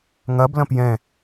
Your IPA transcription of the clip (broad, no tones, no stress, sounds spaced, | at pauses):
ŋ ɐ b l ɐ̃ p j ɛ̃